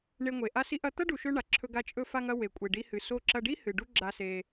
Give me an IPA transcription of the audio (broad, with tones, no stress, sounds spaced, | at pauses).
ɳ e˧ ŋʷ e˨ ʔ a˦ s i˦ ʔ ɐ˦ t̪ ɐ˦ ɖ u˨ ʃ ɵ˧ ɳ a˨ ǁʰ ɵ˧ ɡ a˧ t͡ʃʼ ɵ˧ f a˧ ŋ ɐ˧ w e˨ kʷʼ e˨ ɖ i˧ h ɨ˨ s o˧ ǁ ɐ˧ ɖ i˦ h ɨ˨ ɖ u˦ ɡ͡ǁ a˧ s e˧